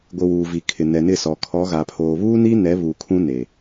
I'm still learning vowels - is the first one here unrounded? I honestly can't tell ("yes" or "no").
yes